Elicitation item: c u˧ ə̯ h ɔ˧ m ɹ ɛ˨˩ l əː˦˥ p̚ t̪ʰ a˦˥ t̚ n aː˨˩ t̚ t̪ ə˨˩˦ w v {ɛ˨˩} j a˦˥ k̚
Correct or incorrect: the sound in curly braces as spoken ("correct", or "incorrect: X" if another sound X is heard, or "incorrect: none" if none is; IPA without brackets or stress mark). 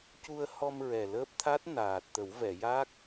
incorrect: ɛ˨˩˨